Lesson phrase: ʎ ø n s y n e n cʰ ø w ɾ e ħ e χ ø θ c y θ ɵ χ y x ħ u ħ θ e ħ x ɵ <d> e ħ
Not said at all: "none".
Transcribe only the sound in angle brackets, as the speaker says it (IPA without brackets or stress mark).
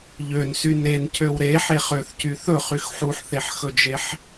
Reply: d͡ʒ